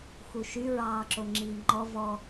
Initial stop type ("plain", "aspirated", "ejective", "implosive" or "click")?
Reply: click